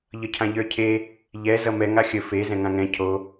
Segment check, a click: absent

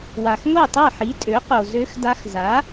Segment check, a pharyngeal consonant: present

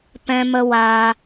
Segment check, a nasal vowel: present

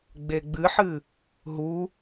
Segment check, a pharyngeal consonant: present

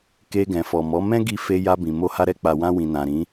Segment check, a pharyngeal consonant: absent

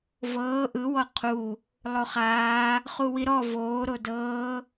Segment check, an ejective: absent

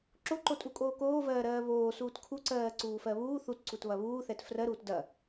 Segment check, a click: present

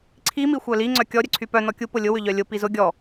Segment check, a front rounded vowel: present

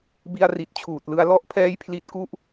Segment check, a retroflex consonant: absent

